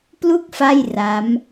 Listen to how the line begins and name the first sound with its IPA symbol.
p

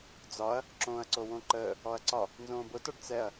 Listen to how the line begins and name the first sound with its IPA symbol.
d͡z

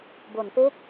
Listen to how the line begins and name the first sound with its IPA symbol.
b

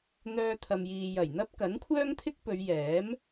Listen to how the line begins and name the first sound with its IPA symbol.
n̪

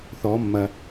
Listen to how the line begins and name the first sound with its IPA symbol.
θ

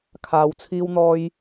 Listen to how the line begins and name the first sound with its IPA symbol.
kʰ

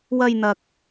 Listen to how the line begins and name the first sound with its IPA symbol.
w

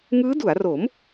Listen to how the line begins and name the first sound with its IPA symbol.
ŋ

